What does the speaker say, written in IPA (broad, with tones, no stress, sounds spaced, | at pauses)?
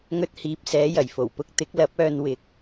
ŋ ɵ˧ t̚ h iː˨ p̚ s ɛː˨˧ j ɐ˨˩ j f o˨˩ w p ʊ˧ k̚ t̪ ɪ˨˥ k̚ l ɐ˨˥ p̚ œː˧ n w ɪ˨˥ k̚